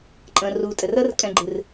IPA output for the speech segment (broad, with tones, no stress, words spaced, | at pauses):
ǃʼə̃ː˨ruː˨tʼɘ˨rəː˦r kʼɛ̃˨ɡ͡ǃɨ˨r